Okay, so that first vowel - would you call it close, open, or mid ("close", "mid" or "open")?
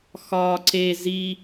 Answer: open